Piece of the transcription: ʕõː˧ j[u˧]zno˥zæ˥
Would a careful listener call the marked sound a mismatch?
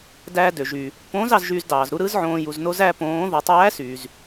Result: no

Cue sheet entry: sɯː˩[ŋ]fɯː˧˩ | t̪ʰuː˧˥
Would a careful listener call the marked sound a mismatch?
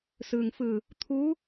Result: no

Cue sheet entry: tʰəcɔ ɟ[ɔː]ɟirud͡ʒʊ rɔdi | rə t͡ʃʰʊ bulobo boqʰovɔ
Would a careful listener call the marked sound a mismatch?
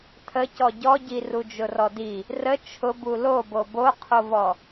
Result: yes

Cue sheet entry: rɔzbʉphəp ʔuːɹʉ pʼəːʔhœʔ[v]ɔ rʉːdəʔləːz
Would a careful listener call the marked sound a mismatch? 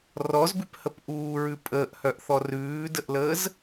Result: yes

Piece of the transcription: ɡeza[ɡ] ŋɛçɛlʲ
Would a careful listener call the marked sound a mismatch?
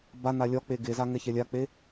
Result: yes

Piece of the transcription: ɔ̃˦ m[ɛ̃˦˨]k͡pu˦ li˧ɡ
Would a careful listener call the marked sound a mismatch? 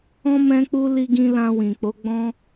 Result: yes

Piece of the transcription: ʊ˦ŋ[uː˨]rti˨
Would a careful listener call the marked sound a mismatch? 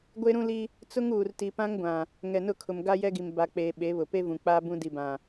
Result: no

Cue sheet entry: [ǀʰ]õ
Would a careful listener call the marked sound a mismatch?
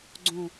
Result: yes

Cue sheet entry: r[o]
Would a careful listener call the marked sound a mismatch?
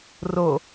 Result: no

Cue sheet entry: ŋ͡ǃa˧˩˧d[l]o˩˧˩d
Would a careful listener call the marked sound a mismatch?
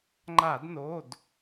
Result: yes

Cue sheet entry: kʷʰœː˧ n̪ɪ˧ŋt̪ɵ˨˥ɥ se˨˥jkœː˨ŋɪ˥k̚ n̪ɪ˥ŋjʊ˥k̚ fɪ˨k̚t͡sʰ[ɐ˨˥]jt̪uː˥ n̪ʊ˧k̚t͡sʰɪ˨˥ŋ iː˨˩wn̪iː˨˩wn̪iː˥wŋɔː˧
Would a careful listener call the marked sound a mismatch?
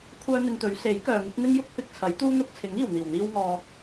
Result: no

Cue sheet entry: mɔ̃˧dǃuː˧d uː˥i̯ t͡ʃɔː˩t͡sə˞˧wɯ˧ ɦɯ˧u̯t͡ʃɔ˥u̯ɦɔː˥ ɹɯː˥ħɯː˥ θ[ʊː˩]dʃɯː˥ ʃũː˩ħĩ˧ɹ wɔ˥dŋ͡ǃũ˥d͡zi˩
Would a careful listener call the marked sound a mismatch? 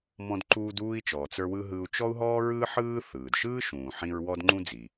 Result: yes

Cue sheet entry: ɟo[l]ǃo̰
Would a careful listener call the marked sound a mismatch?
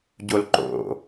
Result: no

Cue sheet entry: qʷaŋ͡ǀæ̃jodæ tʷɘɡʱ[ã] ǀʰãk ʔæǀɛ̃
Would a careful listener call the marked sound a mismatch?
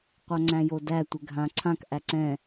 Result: no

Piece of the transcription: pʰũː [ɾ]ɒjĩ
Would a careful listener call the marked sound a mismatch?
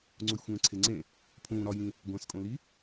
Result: no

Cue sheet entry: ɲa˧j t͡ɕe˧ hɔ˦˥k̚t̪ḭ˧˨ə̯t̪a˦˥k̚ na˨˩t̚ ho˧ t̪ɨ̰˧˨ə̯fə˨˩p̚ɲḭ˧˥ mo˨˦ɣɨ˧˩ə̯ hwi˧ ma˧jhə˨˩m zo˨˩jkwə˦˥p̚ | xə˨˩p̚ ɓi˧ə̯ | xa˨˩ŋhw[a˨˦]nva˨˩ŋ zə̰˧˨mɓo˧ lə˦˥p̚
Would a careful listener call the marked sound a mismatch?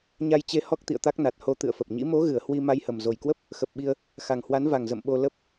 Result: no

